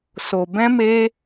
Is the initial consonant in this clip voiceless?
yes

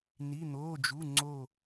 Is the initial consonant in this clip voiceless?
no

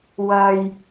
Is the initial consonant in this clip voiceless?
no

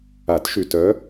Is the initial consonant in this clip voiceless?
yes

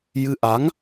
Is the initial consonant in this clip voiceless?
no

